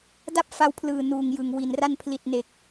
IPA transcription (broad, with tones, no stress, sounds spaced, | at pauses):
d a˥˩ p̚ f a˧ w pʰ l ɯː˨˩ n uː˨˩ ŋ j ɯ˨˩ ŋ w i˨˩ n r a˥˩ n pʰ l i˨˩ t̚ n e˨˩ k̚